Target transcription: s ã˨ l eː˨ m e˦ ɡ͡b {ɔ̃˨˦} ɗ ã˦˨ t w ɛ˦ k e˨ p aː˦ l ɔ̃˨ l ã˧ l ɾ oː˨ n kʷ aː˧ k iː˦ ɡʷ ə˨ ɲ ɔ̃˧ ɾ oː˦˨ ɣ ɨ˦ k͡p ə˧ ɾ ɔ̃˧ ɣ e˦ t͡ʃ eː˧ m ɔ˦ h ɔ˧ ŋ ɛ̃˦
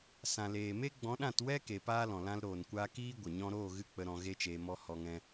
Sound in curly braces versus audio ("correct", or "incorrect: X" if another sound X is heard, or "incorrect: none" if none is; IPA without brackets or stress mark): correct